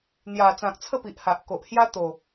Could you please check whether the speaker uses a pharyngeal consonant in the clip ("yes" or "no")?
no